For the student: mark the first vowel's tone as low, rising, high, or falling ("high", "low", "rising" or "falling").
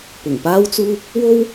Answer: low